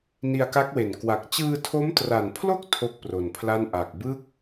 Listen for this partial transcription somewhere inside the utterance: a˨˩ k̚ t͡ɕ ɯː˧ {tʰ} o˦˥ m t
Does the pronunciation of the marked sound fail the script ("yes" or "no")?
no